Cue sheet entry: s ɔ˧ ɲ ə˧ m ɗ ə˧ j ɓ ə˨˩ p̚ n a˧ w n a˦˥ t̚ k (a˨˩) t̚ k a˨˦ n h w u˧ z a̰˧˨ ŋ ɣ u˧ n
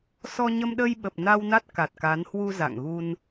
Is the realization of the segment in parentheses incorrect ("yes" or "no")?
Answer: no